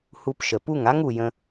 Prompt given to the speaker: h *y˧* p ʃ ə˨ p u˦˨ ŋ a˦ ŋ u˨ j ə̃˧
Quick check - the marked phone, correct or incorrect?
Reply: incorrect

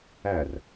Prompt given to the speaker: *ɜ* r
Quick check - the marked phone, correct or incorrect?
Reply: incorrect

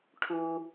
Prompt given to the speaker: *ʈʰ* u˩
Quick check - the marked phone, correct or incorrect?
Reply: correct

